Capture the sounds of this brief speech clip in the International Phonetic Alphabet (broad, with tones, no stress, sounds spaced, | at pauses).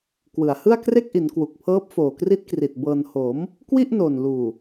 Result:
k w ɯ˩˦ a̯ h ɯ˥˩ a̯ k r e˥˩ k̚ ʔ i˩˦ n k w u˨˩ k̚ pʰ ɤː˦˥ p̚ f oː˨˩ k r i˦˥ t̚ k r i˨˩ t̚ b ɤː˧ n h o˩˦ m | k w i˥˩ ʔ n oː˨˩ n l uː˨˩